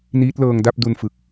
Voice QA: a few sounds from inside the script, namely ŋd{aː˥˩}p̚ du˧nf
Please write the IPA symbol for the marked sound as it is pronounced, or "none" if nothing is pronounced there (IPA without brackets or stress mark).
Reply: a˥˩